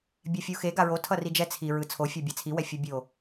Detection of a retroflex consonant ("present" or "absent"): absent